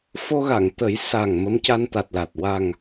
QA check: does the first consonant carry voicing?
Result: no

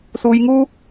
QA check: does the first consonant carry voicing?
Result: no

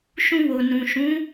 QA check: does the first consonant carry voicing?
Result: no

